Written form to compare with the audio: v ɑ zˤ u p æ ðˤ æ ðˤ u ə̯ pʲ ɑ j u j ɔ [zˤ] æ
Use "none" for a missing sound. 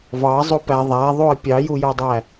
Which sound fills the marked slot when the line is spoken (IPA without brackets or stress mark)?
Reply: dˤ